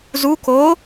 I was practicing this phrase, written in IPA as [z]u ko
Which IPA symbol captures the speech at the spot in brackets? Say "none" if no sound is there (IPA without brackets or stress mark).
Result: z